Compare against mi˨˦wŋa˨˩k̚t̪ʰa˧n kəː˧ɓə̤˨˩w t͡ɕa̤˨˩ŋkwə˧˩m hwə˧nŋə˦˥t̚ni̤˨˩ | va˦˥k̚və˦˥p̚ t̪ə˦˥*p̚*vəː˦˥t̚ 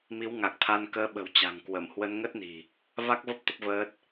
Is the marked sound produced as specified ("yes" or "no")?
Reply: yes